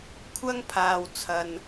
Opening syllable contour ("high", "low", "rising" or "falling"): high